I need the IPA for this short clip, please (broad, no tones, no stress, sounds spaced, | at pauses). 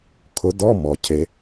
kʰ ʊ d ɔ m ɔ cʰ e